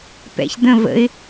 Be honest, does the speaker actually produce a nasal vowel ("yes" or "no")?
yes